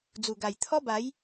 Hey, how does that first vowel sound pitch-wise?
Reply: low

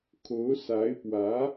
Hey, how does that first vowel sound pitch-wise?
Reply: rising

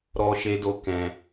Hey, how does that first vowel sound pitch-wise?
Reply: high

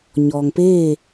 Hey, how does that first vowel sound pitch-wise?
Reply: low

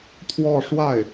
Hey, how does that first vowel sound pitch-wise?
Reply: falling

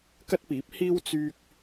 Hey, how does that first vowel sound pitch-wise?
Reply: high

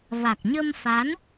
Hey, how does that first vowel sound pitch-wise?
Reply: low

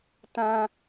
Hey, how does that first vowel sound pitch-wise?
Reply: high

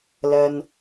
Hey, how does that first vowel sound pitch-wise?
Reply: low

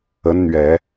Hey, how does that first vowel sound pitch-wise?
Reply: rising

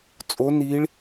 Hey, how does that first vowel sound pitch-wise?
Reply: rising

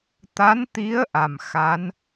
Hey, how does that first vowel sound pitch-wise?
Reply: rising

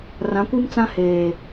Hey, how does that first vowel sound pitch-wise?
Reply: rising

